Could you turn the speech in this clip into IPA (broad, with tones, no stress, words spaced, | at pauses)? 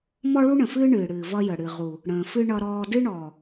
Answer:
mɔ˦ɭu˦ɳə̃˨fɨː˦ ɳɨː˨ɽɨː˨ vʌ˦jə˨ɽɨ˨ ʁu˨ | ɽə̃ː˨fɨ˦ ɳʌ˦ɾɔː˦ dɨ˦ɳɔː˨